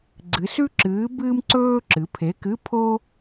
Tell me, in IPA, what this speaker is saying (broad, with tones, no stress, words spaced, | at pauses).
ɡ͡ǀɨ˩˧sʉ˥ǁɨː˨˥ bɨː˥mǀɵː˥ǁɨ˩˧ pʰe˨˥kɨ˧˥˧pʰo˥